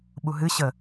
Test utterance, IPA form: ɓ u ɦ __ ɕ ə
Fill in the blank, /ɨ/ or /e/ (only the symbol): ɨ